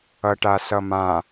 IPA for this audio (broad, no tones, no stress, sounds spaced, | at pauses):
ʌ ʈ a s ʌ m ã